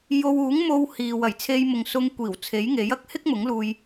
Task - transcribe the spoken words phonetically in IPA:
j o˧ w uː˨˥ ŋ m o˧ w h iː˨ w ɐ˨˩ j t͡sʰ e˧ j m ʊ˨ ŋ s ʊ˧ ŋ kʷ iː˨˩ w t͡sʰ e˨˥ j ŋ e˨˥ j ɐ˥ k̚ h ɪ˥ k̚ m ʊ˨˥ ŋ l uː˧ j

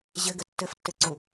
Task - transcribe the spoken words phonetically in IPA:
ʑ ɘ ɡ ə tː ɘ f tː ɘ ǀ u

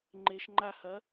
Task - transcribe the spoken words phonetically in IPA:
ŋ͡ǃ e ʃ ŋ͡ǃ a h ɐ

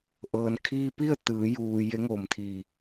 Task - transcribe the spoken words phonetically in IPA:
ʔ ɤː˩ n kʰ iː˧ p i˥˨ ə̯ t̪ ɯː˩˧ j uː˧ j e˧˥ ŋ oː˧˩ m t̪ʰ iː˧˩

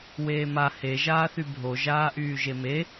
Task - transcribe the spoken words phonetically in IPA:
w eː m a h e ʒ aː θ y bʱ o ʒ aː ʔ yː ʒ e m e

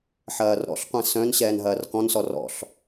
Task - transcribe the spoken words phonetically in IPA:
ħ ɐː r ɾ ɔ̰ ɬ qʷ ɛ̃ s œ̃ n ɕ ɛː n ɦ ɐː r k ɔ̃ n s ɔ r ɔ̰ ɬ

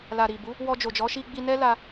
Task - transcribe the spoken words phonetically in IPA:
l a˨ ɾ i˨ b u˨˦ | w ɔ˧ d͡ʒ o˨ d͡ʒ ɔ˨˦ ʃ i˧ ɡ͡b i˧ n ɛ˦ l a˧

